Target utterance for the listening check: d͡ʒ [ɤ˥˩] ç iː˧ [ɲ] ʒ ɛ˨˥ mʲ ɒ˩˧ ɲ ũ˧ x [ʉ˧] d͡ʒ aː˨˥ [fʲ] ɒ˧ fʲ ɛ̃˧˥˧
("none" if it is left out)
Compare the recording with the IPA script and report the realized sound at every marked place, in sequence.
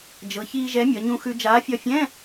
ɤ˩˧, none, ʉ˧, fʲ

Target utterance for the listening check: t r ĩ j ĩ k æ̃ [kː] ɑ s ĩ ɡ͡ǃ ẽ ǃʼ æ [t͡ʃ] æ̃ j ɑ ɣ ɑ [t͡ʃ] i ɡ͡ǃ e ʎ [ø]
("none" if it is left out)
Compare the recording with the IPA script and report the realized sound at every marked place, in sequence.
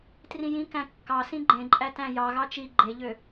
kː, t, t͡ʃ, ø

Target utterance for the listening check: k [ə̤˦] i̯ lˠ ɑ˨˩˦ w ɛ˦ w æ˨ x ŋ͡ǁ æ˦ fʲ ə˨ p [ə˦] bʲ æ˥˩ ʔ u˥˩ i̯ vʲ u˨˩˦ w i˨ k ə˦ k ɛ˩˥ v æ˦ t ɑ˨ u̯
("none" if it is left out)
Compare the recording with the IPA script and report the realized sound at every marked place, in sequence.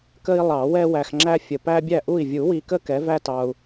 ə˦, æ˦

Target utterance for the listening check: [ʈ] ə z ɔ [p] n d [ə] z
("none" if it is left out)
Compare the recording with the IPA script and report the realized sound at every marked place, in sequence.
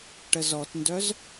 ʈ, t, œ

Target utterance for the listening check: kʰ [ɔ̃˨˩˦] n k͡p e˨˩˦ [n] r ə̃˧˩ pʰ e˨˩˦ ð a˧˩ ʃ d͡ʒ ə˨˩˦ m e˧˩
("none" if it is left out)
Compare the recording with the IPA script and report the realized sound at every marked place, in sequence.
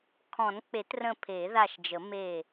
ɔ̃˨˩˦, t

